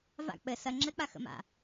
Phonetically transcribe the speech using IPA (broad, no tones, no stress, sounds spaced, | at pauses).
v a̰ k͡p ɘ s ɐ ŋ͡ǁ ɘ k͡p a x ə̰ m a̰